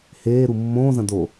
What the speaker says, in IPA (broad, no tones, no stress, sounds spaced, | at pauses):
h eː ɾ u mː õː z ɐ̃ d o